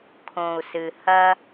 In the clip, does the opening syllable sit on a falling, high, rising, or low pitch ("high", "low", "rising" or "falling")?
low